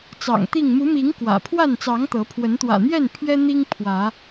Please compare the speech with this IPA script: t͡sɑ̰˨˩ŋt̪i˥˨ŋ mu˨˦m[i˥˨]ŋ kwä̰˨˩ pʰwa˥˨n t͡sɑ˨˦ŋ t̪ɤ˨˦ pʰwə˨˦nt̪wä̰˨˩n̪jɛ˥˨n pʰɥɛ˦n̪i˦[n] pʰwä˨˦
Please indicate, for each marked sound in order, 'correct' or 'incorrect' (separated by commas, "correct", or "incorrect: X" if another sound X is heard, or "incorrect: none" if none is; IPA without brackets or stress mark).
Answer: incorrect: i˨˦, incorrect: ŋ